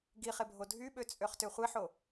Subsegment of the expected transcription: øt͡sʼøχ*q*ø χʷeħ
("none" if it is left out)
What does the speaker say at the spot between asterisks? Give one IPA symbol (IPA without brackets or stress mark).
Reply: t